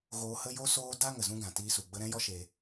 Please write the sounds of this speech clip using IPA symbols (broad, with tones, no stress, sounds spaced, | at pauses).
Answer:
ɣ oː˧ h ə˦ j o˦ s oː˦ d a˦ ŋ ə˨ z ũ˦ ɡ ã˨ t iː˧ s u˨ ɡ͡b ə˧ ɾ ɛ̃˦ j ɔ˦ ʃ e˧